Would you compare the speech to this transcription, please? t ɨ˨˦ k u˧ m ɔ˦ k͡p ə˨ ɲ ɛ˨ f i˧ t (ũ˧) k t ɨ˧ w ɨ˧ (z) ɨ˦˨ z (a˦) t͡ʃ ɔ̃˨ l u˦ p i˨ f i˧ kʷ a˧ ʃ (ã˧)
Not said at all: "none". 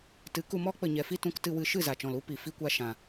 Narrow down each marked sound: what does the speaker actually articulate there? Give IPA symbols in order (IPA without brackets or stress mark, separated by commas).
ũ˧, ʃ, a˨, ã˧